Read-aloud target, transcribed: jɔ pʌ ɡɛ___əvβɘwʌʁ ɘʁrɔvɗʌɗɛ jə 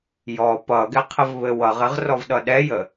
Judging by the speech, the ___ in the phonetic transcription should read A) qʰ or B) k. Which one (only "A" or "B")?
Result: A